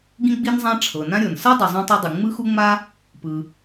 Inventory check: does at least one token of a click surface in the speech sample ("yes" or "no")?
no